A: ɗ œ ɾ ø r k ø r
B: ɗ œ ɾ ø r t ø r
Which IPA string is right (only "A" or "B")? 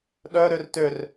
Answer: B